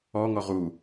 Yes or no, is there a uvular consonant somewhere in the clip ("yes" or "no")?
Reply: yes